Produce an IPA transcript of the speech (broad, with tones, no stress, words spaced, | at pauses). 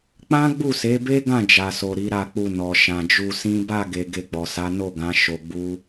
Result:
k͡pã˦ ɡ͡bu˦˨se˨˦be˦ɡã˦˨ d͡ʒa˨so˨ ɾi˨˦ɾa˦˨k͡pu˧ nɔ˨ ʃã˨d͡ʒu˧sĩ˦ ba˦˨ɡe˨ ɡe˧ɡ͡bɔ˨sa˨˦ no˦˨ɡã˨˦ ʃo˧ɡ͡bu˦